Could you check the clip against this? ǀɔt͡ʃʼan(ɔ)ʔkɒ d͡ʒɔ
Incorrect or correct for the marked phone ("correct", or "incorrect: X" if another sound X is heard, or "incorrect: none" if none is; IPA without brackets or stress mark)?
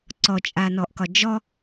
correct